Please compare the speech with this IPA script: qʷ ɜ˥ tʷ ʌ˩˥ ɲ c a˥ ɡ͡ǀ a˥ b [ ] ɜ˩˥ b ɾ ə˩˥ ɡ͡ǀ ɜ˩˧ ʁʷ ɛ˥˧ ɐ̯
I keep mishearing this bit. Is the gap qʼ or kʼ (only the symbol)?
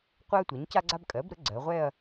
kʼ